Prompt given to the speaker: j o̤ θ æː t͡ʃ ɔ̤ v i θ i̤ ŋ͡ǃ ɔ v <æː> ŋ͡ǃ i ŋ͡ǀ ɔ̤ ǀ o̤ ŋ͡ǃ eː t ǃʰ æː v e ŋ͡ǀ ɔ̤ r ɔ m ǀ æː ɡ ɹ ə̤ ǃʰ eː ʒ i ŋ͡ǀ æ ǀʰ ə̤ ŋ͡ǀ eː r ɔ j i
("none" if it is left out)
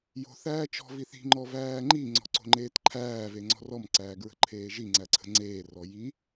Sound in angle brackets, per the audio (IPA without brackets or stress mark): æː